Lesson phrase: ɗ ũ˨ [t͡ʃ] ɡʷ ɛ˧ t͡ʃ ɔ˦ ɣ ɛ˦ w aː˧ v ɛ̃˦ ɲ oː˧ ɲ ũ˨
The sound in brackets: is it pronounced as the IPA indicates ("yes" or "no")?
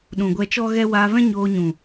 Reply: no